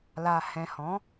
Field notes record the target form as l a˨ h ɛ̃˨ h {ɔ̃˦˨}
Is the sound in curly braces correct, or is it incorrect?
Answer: incorrect